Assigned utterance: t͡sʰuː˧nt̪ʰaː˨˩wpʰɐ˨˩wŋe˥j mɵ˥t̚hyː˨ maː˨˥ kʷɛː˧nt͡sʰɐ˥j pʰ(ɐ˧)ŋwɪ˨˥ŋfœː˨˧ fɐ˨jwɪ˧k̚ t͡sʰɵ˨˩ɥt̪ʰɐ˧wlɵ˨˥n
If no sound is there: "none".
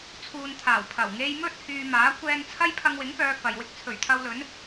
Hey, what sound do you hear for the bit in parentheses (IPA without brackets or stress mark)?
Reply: ɐ˧